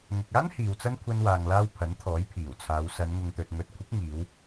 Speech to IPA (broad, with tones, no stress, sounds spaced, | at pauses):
ŋ ʊ˨ k̚ aː˥ n h iː˨ w t͡s ɐ˥ n kʷʰ ɐ˧ n w aː˨ ŋ l aː˧ w pʰ ɐ˨˥ n t̪ʰ ɔː˨˥ j pʰ iː˨˩ w t͡sʰ aː˨˧ w s ɐ˨˧ n ŋ ʊ˨ ŋ t̪ ɵ˨ t̚ ŋ ɵ˨˥ t̚ kʷʰ ɪ˨˥ k̚ ŋ iː˨˧ w